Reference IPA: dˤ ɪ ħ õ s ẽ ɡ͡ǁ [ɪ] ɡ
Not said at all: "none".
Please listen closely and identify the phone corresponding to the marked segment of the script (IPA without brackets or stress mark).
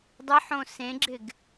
ɪ